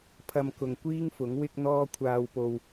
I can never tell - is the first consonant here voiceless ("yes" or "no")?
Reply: yes